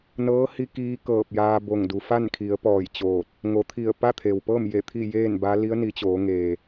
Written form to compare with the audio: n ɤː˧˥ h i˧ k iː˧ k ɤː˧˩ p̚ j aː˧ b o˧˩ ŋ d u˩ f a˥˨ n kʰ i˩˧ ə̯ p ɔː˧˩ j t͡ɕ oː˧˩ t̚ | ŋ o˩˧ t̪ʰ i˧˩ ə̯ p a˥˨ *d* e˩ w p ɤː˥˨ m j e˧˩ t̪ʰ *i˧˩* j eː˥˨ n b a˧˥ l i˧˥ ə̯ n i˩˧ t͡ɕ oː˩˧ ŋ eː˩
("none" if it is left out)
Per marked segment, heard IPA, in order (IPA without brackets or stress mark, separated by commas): t̪ʰ, i˥˨